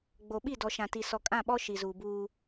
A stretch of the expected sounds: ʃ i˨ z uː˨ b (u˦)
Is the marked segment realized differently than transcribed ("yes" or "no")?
yes